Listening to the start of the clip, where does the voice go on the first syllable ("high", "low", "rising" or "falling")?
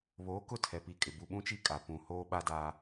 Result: rising